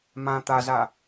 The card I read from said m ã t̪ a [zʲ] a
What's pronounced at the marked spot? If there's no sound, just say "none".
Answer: z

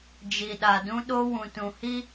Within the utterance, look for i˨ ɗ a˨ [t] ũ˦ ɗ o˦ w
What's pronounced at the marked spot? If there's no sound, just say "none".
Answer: d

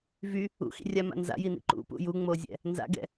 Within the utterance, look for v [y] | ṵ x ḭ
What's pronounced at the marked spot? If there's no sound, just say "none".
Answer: y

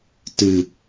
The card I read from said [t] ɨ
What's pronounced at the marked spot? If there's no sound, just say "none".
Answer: t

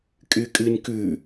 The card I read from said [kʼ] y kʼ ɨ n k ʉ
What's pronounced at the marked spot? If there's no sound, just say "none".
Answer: kʼ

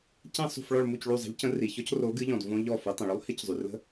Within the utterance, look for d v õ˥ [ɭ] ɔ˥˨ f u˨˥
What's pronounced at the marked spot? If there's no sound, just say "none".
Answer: ʎ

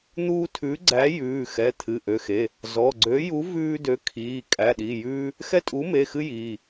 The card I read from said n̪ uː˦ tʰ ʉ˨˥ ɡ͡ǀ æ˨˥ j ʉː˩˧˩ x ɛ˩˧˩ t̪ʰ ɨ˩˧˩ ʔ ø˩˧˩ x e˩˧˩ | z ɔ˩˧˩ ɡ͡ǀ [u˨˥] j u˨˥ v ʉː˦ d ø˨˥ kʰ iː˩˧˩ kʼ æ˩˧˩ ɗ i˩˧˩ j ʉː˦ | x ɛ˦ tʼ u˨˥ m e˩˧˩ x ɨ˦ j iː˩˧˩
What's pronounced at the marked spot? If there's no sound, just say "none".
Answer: ø˨˥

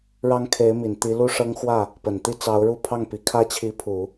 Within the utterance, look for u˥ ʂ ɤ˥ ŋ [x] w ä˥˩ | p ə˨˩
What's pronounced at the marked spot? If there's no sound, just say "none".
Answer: x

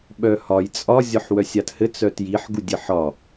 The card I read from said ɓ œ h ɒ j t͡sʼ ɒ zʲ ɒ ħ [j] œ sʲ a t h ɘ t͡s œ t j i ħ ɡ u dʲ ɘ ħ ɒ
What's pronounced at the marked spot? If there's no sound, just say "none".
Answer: w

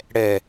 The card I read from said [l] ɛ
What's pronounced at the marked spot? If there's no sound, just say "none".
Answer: ɽ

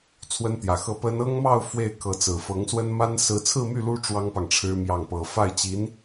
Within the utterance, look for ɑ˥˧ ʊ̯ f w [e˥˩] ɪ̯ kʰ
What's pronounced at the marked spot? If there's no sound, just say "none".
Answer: e˥˩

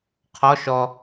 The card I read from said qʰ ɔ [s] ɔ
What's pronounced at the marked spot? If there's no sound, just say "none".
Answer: ʃ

